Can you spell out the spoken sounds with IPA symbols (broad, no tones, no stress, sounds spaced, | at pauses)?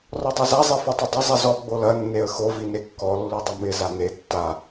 r ɔ dˤ e z a zˤ i f o tˤ ɪ dˤ ɪ zˤ i z ɔ ɡ͡b o l ɐ nː e ə̯ x o v i n e kː ɔ lː u dˤ ə m ɪ z a n e tː a